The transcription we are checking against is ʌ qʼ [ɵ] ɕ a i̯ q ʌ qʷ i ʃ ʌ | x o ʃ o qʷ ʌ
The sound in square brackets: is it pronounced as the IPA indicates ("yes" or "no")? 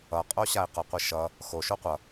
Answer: no